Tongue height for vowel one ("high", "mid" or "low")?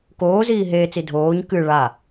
mid